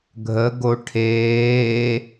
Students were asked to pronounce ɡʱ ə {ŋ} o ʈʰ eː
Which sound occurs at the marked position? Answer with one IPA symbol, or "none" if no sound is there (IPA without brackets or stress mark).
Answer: ɡ